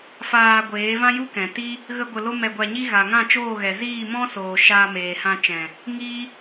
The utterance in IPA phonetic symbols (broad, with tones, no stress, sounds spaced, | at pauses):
f aː˧ ɡʷ eː˨˦ v ã˦ j u˦ k ɛ̃˨ t i˦ | ɣ ə˦ ɡʷ ə˧ l o˦ m ɛ˧ ɡʷ a˧ ɲ i˦ ɣ a˨ ŋ ã˦˨ t͡ʃ oː˦˨ ɣ ɛ˨ z iː˦˨ m ɔ̃˦ s oː˨ ʃ aː˧ m eː˨ h ã˧ t͡ʃ ɛ̃˨ | ŋ iː˦